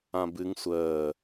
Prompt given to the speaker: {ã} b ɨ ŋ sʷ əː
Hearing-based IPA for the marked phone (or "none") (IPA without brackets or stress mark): ã